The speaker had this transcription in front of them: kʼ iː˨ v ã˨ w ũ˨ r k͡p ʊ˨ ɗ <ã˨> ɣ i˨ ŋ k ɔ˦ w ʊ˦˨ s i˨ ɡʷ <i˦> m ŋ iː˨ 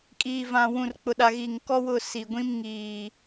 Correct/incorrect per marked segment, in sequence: incorrect: a˨, incorrect: ĩ˦

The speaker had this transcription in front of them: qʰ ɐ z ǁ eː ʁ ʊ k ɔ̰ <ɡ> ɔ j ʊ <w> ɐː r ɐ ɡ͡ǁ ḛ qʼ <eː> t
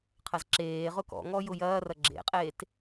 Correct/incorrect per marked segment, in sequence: incorrect: ŋ, incorrect: j, correct

